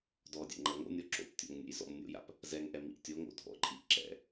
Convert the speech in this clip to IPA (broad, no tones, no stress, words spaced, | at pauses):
dɔdʲɛ̰ ŋ͡ǃɐŋo̰nʲɔ ǁo̰ptʲo̰ŋ nʲɛ̰jzɔ̰mnʲo̰ja̰p | zɛŋʔɛ mḭʔtʲoŋo̰ dʱɔ̰ǃʼiʔ ǁɛ̰